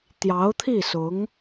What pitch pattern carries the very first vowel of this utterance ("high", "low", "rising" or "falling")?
rising